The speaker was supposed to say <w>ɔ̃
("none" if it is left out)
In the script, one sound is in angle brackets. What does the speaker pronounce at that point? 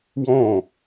w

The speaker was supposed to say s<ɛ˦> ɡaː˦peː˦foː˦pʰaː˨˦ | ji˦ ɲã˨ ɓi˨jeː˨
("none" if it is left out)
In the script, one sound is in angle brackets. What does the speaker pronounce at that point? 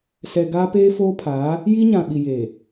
ɛ˨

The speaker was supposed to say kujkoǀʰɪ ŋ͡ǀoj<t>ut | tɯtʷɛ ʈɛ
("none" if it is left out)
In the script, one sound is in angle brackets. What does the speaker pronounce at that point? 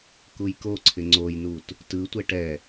n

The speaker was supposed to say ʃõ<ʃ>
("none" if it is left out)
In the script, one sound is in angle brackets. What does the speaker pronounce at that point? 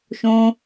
none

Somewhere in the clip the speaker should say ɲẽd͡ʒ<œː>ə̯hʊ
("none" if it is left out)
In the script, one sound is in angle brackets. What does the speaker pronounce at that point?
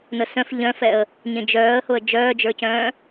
œː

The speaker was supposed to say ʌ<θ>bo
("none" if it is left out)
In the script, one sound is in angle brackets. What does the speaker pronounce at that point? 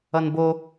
n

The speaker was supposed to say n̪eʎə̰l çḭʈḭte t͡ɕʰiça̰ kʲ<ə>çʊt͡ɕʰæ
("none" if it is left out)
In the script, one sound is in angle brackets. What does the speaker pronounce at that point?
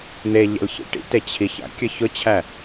ə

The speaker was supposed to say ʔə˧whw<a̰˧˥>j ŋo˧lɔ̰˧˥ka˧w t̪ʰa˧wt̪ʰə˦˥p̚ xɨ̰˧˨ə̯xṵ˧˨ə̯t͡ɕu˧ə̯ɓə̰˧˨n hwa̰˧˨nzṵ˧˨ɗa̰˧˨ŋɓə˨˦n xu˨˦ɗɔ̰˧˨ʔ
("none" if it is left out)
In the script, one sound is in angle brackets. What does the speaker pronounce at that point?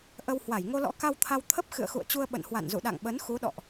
a˧˩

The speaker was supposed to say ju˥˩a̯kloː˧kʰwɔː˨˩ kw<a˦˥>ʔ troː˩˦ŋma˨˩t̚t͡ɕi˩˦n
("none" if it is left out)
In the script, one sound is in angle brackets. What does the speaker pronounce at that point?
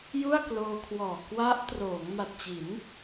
a˦˥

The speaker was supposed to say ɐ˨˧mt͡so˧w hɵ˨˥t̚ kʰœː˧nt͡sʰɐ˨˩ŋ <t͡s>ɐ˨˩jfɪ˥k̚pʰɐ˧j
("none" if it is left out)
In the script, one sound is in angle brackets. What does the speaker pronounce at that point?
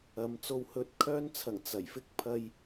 t͡s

